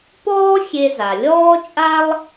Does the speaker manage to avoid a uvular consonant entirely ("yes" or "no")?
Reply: yes